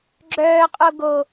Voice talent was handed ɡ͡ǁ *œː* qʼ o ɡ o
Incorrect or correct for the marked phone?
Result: correct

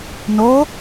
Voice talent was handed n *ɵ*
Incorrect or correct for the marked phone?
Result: incorrect: o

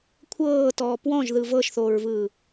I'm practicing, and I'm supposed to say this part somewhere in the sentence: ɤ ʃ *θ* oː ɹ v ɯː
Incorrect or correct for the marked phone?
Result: correct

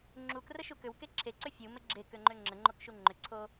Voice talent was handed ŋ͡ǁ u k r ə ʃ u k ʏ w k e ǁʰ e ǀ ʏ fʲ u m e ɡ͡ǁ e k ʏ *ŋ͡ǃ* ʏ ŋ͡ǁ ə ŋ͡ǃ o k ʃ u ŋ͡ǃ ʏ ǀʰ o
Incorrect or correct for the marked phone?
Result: correct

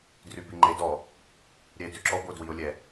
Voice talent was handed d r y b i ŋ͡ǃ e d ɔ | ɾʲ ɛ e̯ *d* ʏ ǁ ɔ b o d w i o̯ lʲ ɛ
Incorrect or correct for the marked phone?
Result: correct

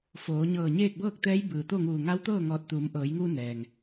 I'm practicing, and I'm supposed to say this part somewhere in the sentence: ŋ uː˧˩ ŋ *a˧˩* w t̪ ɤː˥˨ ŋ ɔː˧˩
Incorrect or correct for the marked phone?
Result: incorrect: a˧˥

